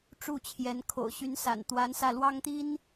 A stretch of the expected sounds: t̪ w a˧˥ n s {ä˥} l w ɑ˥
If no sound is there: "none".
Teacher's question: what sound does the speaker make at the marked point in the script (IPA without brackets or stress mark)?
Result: ä˧